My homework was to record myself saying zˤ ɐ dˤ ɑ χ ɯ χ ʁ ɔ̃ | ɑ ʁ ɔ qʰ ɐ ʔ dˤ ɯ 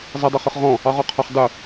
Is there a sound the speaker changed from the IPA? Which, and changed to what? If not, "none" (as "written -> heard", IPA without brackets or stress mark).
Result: ʔ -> χ